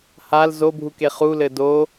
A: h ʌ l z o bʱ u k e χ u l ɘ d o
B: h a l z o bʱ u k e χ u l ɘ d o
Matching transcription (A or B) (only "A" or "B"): B